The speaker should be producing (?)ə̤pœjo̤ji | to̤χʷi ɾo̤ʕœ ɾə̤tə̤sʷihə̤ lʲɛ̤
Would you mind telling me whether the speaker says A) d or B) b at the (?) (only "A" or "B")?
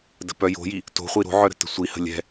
A